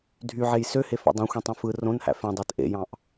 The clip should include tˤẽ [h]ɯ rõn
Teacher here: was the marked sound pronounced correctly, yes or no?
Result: no